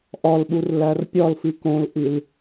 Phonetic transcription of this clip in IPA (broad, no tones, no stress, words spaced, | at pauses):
ʔɒlɓur lærpʲɒlfi kõlʔil